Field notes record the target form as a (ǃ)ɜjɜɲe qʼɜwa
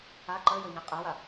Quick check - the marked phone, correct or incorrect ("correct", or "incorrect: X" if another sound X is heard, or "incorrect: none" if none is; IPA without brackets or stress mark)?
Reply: correct